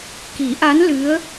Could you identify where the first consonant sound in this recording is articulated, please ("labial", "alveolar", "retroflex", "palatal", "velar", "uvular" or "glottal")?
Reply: velar